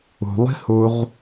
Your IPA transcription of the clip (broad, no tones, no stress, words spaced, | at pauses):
ṳlˠi̤huʁ